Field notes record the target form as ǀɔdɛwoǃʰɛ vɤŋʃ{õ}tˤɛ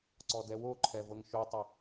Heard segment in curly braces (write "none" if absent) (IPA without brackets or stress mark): o